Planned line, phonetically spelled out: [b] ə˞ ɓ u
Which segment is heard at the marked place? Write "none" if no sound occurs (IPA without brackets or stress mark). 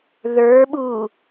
ð